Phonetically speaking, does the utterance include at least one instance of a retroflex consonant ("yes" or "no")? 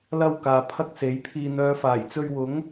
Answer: no